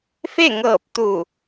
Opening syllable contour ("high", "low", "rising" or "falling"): falling